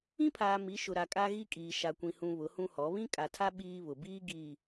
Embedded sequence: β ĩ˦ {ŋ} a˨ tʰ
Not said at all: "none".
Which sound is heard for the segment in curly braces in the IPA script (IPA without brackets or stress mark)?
kʼ